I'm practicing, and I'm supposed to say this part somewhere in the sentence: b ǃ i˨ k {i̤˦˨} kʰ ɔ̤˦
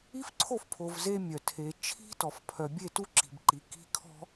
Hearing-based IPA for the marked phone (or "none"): i̤˦˨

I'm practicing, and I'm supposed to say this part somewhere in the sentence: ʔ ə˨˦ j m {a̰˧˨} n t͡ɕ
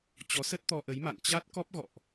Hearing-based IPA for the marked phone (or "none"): a̰˧˨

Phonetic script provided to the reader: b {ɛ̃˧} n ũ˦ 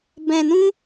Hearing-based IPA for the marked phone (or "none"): ɛ̃˧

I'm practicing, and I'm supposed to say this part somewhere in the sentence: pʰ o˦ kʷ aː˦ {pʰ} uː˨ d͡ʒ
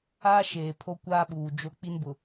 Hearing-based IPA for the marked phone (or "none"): ɓ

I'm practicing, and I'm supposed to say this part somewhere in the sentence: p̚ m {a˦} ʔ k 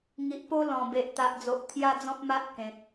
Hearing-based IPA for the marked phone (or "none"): a˦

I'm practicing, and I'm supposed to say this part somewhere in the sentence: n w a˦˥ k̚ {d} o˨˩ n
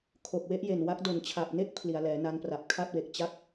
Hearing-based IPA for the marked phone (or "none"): d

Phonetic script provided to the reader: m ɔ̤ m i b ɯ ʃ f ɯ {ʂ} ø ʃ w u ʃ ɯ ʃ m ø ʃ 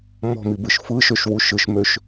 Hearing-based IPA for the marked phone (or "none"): ʃ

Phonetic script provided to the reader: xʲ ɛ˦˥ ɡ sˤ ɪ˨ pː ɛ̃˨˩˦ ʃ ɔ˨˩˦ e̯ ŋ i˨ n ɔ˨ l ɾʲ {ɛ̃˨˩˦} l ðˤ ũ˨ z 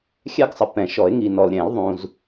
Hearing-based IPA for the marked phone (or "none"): ɛ̃˨˩˦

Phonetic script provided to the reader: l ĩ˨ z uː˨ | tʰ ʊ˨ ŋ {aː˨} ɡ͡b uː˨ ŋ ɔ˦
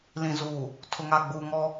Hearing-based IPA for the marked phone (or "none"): a˨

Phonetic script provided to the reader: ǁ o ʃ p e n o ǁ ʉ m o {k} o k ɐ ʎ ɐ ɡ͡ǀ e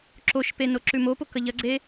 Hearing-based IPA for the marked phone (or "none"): p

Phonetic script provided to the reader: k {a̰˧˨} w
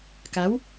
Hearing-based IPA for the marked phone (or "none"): a˨˦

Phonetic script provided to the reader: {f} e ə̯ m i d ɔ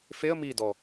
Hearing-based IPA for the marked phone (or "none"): f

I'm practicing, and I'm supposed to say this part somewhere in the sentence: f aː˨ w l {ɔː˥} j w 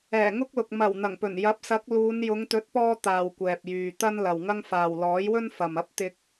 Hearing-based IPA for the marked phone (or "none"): ɔː˨˥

